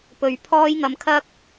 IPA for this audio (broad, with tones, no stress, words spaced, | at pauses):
pɵ˨˧ɥpʰɔː˥jŋɐ˨˧mkʰɐ˥k̚